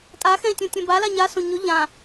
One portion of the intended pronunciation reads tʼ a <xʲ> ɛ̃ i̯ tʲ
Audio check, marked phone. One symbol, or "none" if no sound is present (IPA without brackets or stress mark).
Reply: x